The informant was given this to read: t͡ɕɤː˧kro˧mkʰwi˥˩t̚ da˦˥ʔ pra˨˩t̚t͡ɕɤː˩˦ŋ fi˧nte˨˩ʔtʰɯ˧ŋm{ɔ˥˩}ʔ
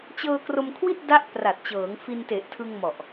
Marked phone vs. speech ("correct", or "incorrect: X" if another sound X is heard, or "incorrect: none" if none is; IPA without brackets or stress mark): incorrect: ɔ˨˩